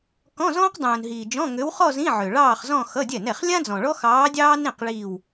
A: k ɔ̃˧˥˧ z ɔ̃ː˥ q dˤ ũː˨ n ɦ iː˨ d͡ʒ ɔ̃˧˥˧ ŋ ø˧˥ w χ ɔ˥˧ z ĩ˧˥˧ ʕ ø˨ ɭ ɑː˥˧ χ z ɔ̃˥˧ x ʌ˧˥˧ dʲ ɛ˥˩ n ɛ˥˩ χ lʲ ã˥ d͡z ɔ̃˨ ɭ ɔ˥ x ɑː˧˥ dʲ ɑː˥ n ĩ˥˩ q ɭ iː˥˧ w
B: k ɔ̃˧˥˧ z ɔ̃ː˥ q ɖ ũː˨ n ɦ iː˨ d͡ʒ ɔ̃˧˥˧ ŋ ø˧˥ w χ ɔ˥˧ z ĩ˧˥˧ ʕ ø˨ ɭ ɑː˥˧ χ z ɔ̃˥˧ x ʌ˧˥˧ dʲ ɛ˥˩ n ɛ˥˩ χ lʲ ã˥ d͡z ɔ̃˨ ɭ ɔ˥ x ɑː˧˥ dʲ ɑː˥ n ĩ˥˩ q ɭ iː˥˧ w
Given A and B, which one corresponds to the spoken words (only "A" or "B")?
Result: A